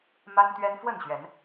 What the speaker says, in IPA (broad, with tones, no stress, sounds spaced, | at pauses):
m a˦ n t̪ ɥ ɛ˦ n f w ə˥˨ n ɕ ɥ ɛ˨˦ n